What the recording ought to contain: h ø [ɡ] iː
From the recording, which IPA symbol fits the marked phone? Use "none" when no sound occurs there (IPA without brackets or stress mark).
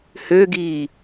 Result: ɡ